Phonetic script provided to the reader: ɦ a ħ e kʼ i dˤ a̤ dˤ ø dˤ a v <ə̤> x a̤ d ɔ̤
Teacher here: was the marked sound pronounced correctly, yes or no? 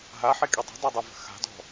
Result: yes